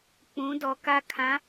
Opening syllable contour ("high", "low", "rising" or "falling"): rising